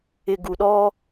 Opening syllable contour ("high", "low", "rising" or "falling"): low